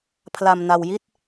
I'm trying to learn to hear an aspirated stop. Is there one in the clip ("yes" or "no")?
yes